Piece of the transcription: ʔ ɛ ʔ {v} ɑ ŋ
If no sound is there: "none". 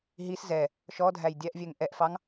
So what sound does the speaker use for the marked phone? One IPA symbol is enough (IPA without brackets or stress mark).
f